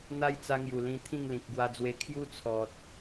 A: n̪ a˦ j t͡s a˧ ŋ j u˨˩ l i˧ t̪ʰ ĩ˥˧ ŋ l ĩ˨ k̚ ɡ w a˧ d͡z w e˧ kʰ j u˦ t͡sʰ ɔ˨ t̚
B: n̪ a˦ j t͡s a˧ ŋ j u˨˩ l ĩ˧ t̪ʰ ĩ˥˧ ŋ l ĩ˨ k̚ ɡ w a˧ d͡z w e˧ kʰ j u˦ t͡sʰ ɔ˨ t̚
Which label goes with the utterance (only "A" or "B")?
B